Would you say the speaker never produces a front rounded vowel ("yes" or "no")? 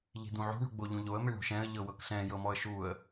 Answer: yes